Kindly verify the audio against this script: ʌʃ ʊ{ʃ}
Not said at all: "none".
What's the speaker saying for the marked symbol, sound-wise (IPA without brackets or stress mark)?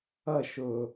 none